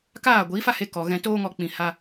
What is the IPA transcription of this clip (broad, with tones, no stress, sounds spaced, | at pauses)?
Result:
k aː˦˨ ɡʷ iː˨˦ f a˦ h e˧ k ɔ˨ ɣ ɛ̃˧ t oː˦ ŋ ɔ˧ k͡p ĩ˨ h a˧